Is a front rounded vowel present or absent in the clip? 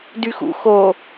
present